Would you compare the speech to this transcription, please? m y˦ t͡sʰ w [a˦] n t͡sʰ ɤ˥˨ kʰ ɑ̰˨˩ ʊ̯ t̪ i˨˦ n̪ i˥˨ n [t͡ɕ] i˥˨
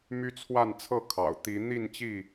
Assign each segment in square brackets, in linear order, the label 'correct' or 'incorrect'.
incorrect: a˥˨, correct

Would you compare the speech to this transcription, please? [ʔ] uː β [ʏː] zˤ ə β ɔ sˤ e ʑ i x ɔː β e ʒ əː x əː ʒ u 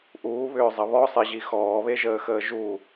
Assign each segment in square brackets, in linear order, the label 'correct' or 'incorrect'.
correct, correct

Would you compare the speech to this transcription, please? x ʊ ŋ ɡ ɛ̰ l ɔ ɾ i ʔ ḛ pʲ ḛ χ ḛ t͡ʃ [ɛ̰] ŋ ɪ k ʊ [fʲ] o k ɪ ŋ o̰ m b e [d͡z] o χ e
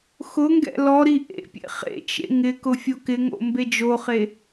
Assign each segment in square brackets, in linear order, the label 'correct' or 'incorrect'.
incorrect: ḛ, correct, incorrect: d͡ʒ

